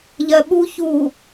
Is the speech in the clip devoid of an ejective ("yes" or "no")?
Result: yes